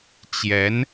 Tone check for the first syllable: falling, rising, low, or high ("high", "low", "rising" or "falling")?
rising